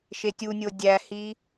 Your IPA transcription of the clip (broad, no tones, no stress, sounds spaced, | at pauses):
ʃ e tʲ u nʲ o dʲ æ h i